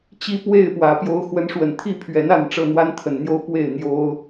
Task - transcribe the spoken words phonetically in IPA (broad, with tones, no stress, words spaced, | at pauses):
t͡ɕi˦pwe˥˨ɪ̯pwä˨˦ pjo˨˦ʊ̯xwə˨˦n ʂwə˨˩nt̪ʰi˥˨pʰɥɛ˨˦na˥˨n ʈ͡ʂɤ˥˨n̪wa˦nt̪ʰə˨˩nn̪jo˦ʊ̯ pwe˥˨ɪ̯ n̪jo˦ʊ̯